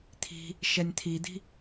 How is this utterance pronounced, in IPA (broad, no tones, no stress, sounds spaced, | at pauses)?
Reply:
t̪ʰ i̤ | ʃ ɛ nʲ t̪ʰ i d̪ i̤